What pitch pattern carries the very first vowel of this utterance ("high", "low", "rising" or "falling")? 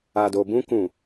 low